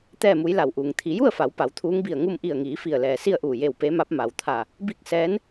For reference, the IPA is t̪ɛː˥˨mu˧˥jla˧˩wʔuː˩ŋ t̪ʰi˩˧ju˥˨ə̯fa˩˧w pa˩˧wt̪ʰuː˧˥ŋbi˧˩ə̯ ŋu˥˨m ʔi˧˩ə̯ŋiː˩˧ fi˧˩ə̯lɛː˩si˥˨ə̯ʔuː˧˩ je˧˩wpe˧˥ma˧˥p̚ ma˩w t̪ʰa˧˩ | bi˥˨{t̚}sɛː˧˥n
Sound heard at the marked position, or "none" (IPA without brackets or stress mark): k̚